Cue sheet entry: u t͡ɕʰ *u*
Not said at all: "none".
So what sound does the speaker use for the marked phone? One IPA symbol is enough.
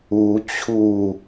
u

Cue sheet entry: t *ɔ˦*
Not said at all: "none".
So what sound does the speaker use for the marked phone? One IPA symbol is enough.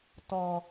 ɔ˦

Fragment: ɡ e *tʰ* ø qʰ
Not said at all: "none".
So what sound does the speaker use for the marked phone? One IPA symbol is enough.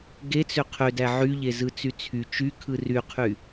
t͡s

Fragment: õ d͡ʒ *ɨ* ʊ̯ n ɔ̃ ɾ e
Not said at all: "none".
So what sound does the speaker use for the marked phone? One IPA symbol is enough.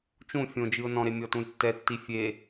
ɨ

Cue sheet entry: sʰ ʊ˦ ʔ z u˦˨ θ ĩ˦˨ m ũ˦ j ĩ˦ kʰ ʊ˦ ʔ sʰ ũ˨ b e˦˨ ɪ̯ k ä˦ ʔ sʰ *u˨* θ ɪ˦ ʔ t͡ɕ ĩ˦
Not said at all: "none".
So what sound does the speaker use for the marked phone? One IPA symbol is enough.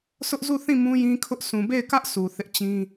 u˨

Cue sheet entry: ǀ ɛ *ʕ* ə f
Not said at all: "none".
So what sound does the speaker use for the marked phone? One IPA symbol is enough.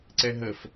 ɦ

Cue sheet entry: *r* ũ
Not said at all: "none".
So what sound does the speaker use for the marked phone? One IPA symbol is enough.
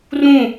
r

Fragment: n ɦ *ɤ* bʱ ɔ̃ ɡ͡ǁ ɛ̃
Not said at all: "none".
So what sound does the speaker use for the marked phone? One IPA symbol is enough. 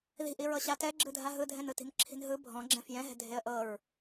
ɯ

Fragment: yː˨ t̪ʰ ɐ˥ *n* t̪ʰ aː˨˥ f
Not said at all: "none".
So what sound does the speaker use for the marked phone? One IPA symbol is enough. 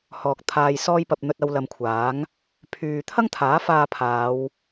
ŋ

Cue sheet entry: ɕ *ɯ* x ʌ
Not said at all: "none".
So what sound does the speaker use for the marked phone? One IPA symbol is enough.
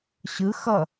ɯ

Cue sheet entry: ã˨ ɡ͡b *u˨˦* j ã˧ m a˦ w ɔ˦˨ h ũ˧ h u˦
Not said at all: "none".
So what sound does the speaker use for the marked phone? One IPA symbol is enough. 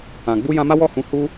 u˧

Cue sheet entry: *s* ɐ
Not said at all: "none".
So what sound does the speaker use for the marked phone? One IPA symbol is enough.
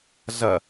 z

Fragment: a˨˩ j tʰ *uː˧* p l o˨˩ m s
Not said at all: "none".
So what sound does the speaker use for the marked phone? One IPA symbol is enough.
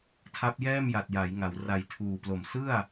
uː˨˩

